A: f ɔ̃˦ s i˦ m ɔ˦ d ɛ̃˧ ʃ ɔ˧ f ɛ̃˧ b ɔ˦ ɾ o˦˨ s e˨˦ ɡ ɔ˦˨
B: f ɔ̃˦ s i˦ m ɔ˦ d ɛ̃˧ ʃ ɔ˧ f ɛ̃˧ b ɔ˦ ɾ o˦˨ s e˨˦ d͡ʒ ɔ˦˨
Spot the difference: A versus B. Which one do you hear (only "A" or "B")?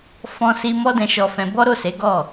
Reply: A